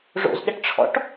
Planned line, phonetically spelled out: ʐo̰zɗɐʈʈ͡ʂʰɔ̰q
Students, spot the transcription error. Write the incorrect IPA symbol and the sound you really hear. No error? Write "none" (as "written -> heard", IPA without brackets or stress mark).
q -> ʈ